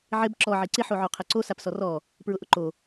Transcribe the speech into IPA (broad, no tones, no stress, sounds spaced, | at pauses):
ʕ ɪ b ǁ ɔ ʕ i ǀ ɪ ħ o ʕ o qʰ ɛ ǀ o s a p s ɔ r ɔ | p ɹ ʊ ʔ ʊ ǃ o